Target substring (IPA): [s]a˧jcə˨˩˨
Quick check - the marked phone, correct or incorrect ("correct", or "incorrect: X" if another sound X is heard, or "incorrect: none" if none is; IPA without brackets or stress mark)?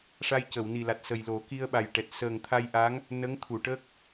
incorrect: ʂ